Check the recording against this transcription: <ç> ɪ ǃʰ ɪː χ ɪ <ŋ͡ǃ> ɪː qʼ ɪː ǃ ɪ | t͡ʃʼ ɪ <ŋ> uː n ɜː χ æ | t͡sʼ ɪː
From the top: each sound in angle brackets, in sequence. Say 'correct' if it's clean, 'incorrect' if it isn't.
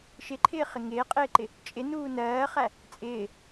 incorrect: ʃ, incorrect: ŋ, incorrect: n

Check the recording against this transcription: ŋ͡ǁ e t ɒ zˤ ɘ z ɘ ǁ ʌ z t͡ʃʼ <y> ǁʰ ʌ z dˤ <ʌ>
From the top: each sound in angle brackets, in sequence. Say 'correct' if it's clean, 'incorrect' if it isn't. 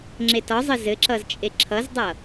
incorrect: e, correct

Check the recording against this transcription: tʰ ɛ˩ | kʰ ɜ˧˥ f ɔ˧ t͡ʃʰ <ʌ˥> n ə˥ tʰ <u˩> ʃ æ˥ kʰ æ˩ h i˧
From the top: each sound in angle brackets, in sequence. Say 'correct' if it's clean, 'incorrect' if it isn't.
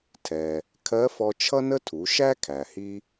correct, incorrect: u˩˧

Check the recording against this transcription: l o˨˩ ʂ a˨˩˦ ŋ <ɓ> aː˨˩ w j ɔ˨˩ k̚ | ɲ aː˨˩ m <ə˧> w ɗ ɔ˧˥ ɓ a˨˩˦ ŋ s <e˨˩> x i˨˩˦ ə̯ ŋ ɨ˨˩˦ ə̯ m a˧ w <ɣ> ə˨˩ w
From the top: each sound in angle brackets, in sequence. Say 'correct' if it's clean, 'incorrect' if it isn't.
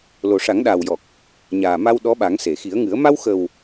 incorrect: ɗ, incorrect: a˧, incorrect: e˨˩˨, incorrect: x

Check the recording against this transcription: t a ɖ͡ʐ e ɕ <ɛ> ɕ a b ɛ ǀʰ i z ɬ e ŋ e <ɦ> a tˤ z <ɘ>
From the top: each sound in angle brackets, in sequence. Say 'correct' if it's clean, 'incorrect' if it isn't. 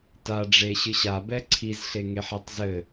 incorrect: ɨ, incorrect: ħ, correct

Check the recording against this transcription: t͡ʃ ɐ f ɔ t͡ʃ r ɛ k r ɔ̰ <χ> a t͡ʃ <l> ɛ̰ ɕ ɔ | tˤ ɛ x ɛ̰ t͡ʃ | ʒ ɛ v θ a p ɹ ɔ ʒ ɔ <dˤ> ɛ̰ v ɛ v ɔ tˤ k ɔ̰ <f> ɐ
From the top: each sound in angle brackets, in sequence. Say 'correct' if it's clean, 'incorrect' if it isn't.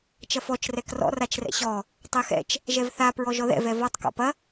incorrect: r, incorrect: r, incorrect: ð, incorrect: p

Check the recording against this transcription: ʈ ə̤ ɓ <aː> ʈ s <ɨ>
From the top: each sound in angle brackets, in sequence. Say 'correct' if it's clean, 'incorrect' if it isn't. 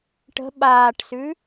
correct, incorrect: ʉ

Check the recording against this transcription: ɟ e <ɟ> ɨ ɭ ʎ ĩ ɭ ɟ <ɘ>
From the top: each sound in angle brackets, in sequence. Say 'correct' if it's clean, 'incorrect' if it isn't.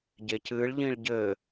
incorrect: c, correct

